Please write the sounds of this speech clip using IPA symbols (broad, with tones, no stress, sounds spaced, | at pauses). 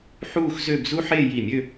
ħ uː˥˧ x z ø˥˧ b z u˥ ħ eː˥˧ j i˧˩ mʲ ø˥˧